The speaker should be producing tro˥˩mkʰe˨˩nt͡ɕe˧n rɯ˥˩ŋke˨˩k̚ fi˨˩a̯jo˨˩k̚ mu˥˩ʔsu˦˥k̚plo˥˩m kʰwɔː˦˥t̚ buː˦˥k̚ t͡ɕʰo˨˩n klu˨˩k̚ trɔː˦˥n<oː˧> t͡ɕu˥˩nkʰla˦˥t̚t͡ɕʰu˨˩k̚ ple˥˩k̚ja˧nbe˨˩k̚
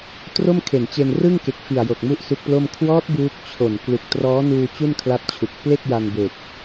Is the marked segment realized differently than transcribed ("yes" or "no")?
yes